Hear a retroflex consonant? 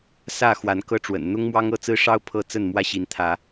yes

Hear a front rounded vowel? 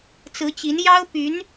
yes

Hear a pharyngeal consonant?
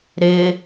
no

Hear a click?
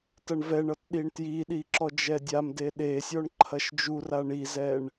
yes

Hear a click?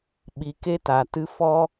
no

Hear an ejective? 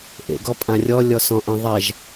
yes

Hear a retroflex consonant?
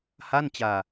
no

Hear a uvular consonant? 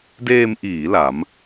no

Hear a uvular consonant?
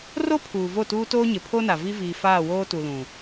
no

